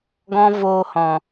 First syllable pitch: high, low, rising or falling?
high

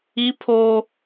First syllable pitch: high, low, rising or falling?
high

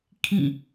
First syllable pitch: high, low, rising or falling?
falling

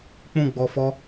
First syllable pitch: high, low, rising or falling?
falling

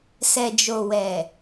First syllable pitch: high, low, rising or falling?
low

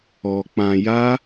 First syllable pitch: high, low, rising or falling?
low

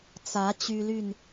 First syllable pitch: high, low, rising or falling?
rising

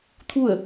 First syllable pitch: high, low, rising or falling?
falling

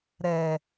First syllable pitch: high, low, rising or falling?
low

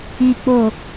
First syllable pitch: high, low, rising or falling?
low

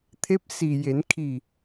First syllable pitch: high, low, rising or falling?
rising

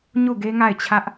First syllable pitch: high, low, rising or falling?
falling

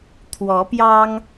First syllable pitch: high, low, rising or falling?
rising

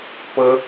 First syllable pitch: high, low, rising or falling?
high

